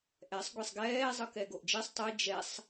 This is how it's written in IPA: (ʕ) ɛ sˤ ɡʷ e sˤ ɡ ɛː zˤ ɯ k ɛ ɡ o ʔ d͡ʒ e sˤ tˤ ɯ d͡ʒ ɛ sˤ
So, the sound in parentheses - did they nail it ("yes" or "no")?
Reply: no